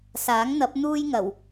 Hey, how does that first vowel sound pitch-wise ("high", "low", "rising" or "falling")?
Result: rising